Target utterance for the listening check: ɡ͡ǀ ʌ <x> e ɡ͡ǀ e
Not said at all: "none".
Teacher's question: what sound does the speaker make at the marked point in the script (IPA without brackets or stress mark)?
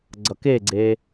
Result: k